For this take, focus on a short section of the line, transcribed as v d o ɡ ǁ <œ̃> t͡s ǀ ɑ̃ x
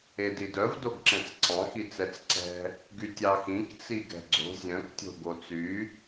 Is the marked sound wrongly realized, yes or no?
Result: yes